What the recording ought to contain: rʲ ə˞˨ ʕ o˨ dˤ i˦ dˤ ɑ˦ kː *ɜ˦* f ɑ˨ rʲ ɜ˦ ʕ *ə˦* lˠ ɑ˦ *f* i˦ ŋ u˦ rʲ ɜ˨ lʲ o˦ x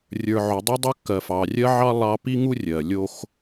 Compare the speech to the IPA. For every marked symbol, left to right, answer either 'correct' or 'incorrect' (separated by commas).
incorrect, incorrect, incorrect